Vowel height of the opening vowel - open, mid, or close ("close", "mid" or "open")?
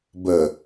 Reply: mid